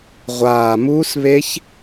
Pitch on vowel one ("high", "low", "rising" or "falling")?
low